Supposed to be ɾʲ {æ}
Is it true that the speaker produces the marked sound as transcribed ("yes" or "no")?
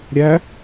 yes